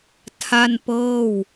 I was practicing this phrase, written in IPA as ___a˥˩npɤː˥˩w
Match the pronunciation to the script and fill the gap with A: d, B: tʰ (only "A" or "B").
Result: B